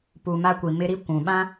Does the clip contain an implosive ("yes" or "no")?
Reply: yes